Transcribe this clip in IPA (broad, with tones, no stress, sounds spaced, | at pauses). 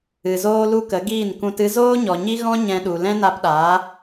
ɨ˨ z oː˦ l u˦ k ə˨˦ ɡ iː˦˨ n k ũ˧ t ɨ˦ z oː˦ ɲ ɔ˨ ɲ i˦ ɣ ɔ̃˦ ɲ ɛ̃˧ ɗ u˨ l ɛ̃˦ n a˧ p ɗ aː˨˦